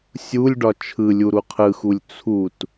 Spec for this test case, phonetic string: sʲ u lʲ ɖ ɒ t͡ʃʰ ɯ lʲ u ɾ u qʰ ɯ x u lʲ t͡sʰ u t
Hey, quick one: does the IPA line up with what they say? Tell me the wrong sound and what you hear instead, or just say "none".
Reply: none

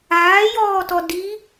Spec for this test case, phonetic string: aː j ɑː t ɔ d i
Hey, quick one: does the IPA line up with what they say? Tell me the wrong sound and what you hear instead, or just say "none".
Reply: ɑː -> ɔː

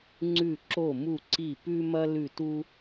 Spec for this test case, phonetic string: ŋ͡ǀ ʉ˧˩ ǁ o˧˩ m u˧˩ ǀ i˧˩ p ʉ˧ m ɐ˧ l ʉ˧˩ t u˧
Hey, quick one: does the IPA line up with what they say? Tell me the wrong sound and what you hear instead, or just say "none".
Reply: none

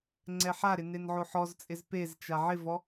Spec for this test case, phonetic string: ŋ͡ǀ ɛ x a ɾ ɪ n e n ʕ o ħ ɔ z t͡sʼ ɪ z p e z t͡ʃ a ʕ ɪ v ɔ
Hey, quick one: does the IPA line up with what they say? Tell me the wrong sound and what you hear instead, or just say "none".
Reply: x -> ħ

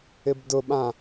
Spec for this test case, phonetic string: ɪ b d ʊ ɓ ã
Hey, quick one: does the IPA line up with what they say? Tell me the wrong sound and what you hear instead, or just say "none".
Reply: none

